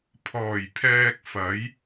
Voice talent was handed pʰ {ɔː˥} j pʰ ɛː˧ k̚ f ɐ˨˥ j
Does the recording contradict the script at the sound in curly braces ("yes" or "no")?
yes